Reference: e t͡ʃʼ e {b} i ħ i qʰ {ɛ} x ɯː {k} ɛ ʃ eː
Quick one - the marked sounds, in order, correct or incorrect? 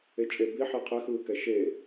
correct, correct, correct

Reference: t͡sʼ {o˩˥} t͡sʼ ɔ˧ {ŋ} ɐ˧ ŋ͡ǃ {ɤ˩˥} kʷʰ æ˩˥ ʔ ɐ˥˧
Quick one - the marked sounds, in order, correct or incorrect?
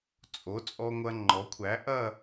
correct, incorrect, incorrect

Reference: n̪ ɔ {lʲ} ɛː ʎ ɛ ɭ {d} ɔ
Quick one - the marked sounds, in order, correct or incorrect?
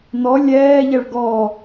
correct, incorrect

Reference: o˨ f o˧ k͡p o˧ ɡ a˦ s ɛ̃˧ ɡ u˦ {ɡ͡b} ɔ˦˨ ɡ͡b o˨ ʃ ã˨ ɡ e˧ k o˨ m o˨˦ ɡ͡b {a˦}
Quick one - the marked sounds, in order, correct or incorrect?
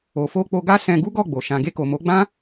incorrect, incorrect

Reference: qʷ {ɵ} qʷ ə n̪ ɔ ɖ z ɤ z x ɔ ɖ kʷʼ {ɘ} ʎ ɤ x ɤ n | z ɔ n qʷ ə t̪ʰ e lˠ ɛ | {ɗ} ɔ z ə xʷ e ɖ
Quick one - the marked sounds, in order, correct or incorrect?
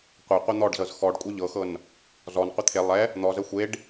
incorrect, incorrect, incorrect

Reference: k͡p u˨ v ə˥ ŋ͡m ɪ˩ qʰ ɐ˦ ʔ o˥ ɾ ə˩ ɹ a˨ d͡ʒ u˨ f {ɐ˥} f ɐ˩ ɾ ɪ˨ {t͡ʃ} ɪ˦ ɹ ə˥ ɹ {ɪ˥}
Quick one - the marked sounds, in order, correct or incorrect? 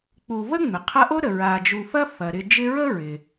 correct, incorrect, incorrect

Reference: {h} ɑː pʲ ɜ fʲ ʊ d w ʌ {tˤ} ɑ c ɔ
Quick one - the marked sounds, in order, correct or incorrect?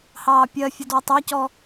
correct, correct

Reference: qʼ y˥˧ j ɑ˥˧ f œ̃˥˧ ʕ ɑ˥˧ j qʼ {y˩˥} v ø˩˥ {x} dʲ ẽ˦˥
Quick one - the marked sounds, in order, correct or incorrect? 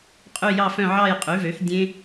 correct, correct

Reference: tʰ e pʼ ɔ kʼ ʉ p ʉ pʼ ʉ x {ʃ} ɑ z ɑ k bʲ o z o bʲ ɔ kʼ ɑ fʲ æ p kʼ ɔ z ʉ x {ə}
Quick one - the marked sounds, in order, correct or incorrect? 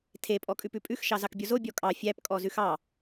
correct, incorrect

